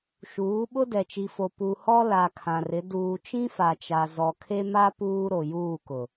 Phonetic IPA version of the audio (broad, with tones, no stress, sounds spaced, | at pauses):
ʃ uː˨˦ ɓ ʊ˦ d ɛ˨ t͡ʃ i˨ f o˨ p u˨ h ɔ˦ l a˨ kʰ ã˨ r ɪ˨˦ d uː˨ t͡ʃ ĩ˦ f a˨ t͡ʃ a˨ z ɔ˨ kʰ e˦ m a˦ p uː˦ ɾ o˨ j uː˦˨ k ʊ˨